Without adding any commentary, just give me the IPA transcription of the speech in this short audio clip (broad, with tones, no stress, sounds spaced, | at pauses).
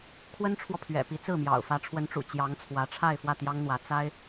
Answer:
kʰ w ə˥ n ʈ͡ʂʰ w ɔ˨ pʰ ɥ ɛ̰˨˩ p i˧˥ t͡s ɹ̩˥˩ m j ɑ̰˨˩ ʊ̯ f ä˧˥ ʈ͡ʂʰ w ə˧˥ n ʈ͡ʂ ṵ˨˩ t͡ɕ j ɑ˧˥ ŋ t͡sʰ w ä˧˥ ʈ͡ʂʰ a˥˧ ɪ̯ f w ä˥˩ t̪ j ɑ˥ ŋ n̪ w ä˧˥ t͡s a˥ ɪ̯